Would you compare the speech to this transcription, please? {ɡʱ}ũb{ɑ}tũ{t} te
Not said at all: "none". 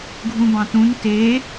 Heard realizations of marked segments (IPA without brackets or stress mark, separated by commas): ɡʱ, ɑ̃, n